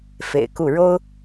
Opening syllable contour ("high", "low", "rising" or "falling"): low